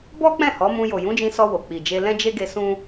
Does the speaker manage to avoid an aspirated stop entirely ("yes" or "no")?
yes